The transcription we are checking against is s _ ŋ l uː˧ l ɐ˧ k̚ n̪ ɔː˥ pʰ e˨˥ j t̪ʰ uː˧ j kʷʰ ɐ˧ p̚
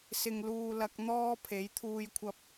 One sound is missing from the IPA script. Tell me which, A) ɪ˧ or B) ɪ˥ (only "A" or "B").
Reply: A